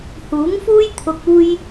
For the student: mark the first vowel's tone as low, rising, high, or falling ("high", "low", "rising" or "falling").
rising